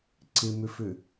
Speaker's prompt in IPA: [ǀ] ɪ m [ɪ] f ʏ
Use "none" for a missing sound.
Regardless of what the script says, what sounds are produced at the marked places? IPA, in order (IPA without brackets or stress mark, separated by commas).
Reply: ǀ, ʏ